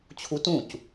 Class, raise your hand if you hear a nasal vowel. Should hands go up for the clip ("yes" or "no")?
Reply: yes